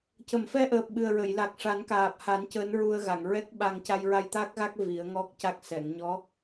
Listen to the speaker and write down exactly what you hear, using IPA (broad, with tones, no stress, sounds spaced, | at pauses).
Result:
c ə˨˩˨ m f ɛ˧ ʔ əː˨˩ p̚ ɓ ɨ˨˩ ə̯ ɹ ə˨˩˨ j l a˨˩ k̚ ʂ a˨˩˦ n k aː˨˩ p̚ h a˨˩˦ n c əː˧˥ n ɹ u˧ ə̯ ɣ a˨˩˨ ŋ ɹ ɛ˦˥ k̚ ɓ a˧ ŋ c a˧ j ɹ a˧ j t̪ a˦˥ k̚ ɣ a˦˥ k̚ v i˨˩˦ ə̯ ŋ ɔ˦˥ k̚ c a˦˥ k̚ s ɛ˨˩˨ ŋ ɲ ɔ˧˥